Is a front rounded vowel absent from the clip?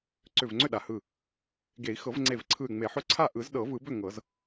no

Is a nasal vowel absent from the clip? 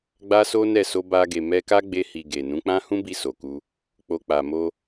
no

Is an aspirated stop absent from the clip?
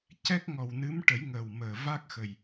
yes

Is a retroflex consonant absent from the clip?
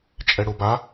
no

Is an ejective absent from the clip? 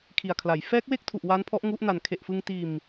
yes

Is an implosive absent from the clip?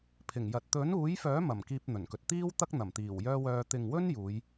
yes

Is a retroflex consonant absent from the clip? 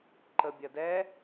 yes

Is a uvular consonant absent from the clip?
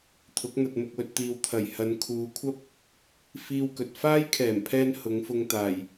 yes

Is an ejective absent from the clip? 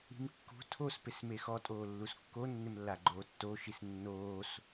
no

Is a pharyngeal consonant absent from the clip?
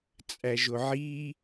no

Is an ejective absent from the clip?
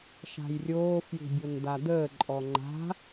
no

